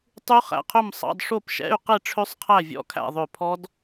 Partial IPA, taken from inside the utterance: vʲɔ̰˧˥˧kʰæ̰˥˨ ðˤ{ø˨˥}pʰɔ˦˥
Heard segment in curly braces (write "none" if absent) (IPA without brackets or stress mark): ø˧˩